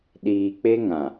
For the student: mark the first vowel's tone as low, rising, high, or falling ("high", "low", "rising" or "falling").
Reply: low